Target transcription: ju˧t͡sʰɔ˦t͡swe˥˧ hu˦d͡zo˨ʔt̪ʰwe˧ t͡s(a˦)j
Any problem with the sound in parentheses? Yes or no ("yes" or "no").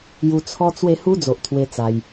yes